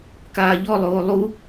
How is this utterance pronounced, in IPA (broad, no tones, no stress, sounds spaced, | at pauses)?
k aː ʎ ɔ lˠ oː lˠ u